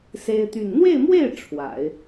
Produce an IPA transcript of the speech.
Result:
s e˥ ɪ̯ t̪ y˥˧ n n̪ w e˥˧ ɪ̯ m w e˥˩ ɪ̯ ʈ͡ʂʰ w a̰˨˩˦ ɪ̯

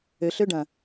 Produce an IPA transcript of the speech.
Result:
ø ɬ ø ɖ ɐ̃

